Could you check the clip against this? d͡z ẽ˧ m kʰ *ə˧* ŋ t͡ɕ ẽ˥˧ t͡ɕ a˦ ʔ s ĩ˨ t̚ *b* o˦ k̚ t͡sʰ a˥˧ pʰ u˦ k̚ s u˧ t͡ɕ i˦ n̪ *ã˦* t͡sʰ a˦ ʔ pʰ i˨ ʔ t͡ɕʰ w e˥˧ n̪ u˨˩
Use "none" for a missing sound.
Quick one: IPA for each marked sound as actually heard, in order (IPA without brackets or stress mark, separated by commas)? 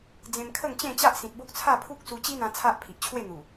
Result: ə˥˧, b, ã˧